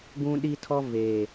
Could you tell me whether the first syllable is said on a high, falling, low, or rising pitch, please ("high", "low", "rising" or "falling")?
high